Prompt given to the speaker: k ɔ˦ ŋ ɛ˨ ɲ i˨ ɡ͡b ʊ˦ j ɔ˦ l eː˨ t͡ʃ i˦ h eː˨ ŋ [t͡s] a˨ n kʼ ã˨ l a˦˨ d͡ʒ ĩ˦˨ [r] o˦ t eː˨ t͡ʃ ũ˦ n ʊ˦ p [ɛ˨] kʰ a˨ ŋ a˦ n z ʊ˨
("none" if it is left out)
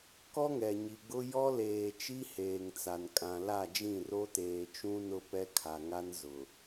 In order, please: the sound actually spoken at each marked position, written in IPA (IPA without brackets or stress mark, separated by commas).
t͡s, r, ɛ˦